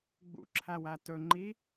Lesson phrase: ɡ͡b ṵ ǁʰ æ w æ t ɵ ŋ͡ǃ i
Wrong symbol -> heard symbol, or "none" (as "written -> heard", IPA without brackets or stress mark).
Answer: none